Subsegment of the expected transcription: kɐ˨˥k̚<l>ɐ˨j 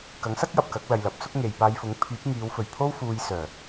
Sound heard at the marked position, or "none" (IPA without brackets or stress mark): l